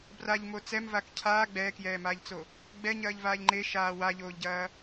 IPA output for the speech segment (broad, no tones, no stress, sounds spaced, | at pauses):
b r a ʎ m o t͡s ɛ m v a k cʰ aː ɡ͡b ɛː k j ɛː m aː ʎ t͡s o | ɡ͡b ɛ ɲ ɐː ʎ v aː ʎ ŋ͡ǃ e ʃ aː w a ʎ oː ʎ ɟ ɐː